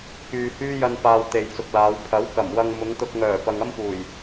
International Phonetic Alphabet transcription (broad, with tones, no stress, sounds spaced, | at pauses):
k yː˨ h yː˥ j ɐ˧ n p aː˨ w t̪ e˨ j t͡s ʊ˨ k̚ l aː˨˧ w pʰ ɐ˨˥ w k ɐ˨˩ m w ɐ˧ ŋ m ʊ˨˧ ŋ t̪ ʊ˧ k̚ ŋ œː˨˩ p ɐ˨ ŋ ɐ˥ m p uː˨˩ j